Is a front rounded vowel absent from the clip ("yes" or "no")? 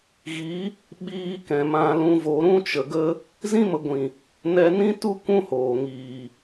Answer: yes